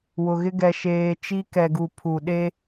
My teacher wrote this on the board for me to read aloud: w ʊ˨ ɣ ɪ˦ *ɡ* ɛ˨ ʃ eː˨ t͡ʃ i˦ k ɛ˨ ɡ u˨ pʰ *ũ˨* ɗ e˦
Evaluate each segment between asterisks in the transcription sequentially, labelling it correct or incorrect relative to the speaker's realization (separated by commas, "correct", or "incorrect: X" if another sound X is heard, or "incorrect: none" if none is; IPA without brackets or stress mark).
correct, incorrect: u˨